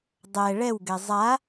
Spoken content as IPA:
dˤɛ ɭɛwɡɛ zˤa

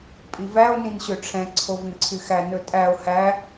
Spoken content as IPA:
pʼivæo̯ nĩnɕøʈ͡ʂʰɛ̃ ǀʰovĩǀʰyxæ nɵtʼæo̯ hæ

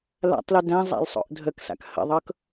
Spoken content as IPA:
la̰tˤlʉ dæ̃zˤa̰lsˤo̰ʔ dʱəksa̰k hə̰ðˤɤk

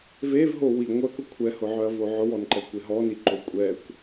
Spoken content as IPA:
vevɦo wi ŋʷœkʊ kʷʰɛhʊʕœɐ̯vo ʕʊwɔnǃɛkʷe ɦɔniǃo kʷʼɛkʷ

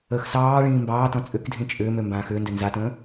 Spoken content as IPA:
əːxsɑːɭĩː mbɑːtɔ̃ t͡sʼʏkdʱĩ t͡ʃʼʏːmø mbãːxʏːndø nzatə̃ː

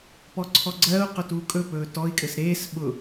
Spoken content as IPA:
pɔǀʰɔɡ͡ǀɜːu̯ qʊtuːkʼɵ pɵːtɔi̯ kʼɘsɾeːs ɓʊ

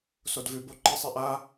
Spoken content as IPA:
sodvʉbo ǃisˤiʔa

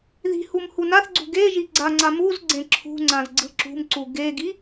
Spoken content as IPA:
ði̤hum hunaθɡ͡ǀṳ ɡeʒi ɡ͡ǀaŋ͡ǀa muz ɡ͡ǀẽǁʰṳŋ͡ǀãz ɡ͡ǀɯǁṳmǀu ɡeɡi

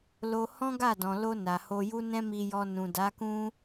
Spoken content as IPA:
lo˧ hɔ̃˦ɡa˦˨dɔ̃˨lo˧ na˨ho˧ju˦ nɛ̃˦mi˧jɔ˧ nũ˨da˨˦kũ˦

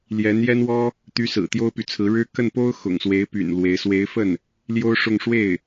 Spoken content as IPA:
ljɛ˧˥njɛ˥nwɔ˥ | t̪y˧˥ sɹ̩˨˩t̪jo˥ʊ̯py˨t͡sʰɹ̩˧˥ ɻɻ̩˥ kə˥˩npo˥ʊ̯ xʊ̰˨˩ŋswe˧˥ɪ̯py̰˨˩n lwe˧˥ɪ̯ swe˧˥ɪ̯fə˥˩n | ljo˥ʊ̯ʂʊ˥˧ŋ ʂwe˥˩ɪ̯

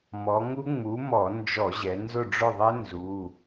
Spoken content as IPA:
mɔ˩˧ŋu˦˥ ŋ͡mu˨˥mɔ˧˩˧ nd͡ʒɔ˧˩˧ʑɛ˩˧ nzʊ˦˨ɖ͡ʐʊ˦˨ðˤɛ˦˥ nzu˩˧˩

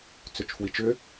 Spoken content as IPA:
t͡sʏt͡ʃfwit͡ʃʏ

